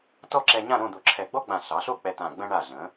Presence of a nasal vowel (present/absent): present